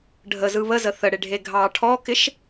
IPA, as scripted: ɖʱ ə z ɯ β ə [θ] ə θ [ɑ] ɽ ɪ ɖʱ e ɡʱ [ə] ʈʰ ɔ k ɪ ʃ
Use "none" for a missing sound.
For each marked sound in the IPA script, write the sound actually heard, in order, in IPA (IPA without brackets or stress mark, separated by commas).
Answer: z, ə, ɑ